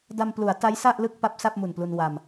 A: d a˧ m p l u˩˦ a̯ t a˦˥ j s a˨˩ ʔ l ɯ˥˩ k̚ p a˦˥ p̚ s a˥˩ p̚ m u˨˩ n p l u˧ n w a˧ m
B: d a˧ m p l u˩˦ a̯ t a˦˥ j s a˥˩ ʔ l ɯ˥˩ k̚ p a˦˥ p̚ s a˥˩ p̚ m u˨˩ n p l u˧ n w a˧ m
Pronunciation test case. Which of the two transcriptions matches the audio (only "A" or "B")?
B